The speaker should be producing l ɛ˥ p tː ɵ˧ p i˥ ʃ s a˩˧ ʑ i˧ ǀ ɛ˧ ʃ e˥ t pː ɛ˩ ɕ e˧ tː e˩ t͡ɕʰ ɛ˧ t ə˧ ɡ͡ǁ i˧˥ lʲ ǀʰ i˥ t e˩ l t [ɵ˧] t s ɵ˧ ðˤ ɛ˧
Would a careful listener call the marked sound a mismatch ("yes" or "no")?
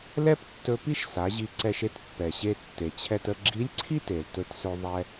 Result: no